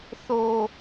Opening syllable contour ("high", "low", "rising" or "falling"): high